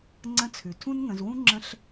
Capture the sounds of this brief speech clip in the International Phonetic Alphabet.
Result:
ŋ͡ǀə̃˧˥t͡sʰʉ˩ tʰũ˥nŋə̃˩˧zwũ˥ ŋ͡ǁə̃˧ɬ

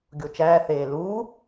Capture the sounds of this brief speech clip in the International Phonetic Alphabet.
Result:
ɡʲot͡ʃæː θeːluː

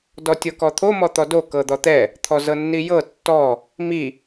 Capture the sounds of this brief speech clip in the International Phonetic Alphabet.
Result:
dɔtʲɤkɔt̪ʰo mɔt̪ɔdo kɤd̪ɔt̪ɛ | t̪ʰɔzɤnːijɤ tːɔ | mi

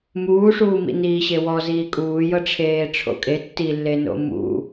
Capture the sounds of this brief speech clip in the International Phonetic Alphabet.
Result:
muːʂuːmḭ niːɕewɔ ziːkʼuːjɤ ʈ͡ʂʰeːʈ͡ʂʰo̰kʼe tːilːe no̰mṵ

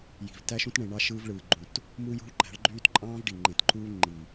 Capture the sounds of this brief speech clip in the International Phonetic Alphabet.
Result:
ji̤˨v tæ˦ʃũ˦tɳẽ˨ ɳɑ˦ ʃɯː˦vɭɯː˨ɡ͡ǃũ˨t | mu˦ jṳ˦ɭǃæ̤˨˦ɭɡ͡ǃyː˦t ǃʼɑ̃ː˦vɖi˨ ŋ͡ǃẽ˨tǃu˦ ŋ͡ǃi˨

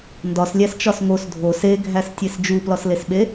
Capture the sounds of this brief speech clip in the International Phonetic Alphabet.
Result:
ndɒslʲæst͡ʃɒs ŋos dʱo seɡʱæstʲes d͡ʒuplɒslesɓe

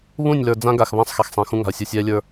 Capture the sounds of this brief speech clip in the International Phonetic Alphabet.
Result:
βũ˦˨nʲlə˞˨ d͡zã˦ɡa˨x βã˦sˤxɛ˨xsˤɛ̃˨ xũ˦ŋa̤˨ə̯sʲu˨ sʲɛː˦lʲə˞˦

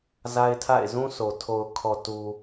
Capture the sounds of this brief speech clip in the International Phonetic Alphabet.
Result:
za˦ɪ̯tʰa̰˦˨ɪ̯ zũ˦sʰo˨ tʰo˨ʊ̯kʰɔ˨tu˨

